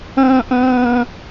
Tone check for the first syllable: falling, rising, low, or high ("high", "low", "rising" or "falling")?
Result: high